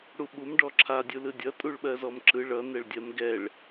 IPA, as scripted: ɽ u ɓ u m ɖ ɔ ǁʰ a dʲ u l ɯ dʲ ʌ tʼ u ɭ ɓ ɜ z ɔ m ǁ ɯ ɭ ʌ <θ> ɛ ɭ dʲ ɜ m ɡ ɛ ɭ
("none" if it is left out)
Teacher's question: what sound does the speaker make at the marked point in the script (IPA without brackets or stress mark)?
n